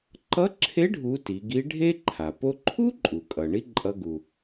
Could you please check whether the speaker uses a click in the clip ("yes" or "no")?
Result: yes